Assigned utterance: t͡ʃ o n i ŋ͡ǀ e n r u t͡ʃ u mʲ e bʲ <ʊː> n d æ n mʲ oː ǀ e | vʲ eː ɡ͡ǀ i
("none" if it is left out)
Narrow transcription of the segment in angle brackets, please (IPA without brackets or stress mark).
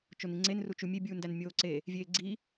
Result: uː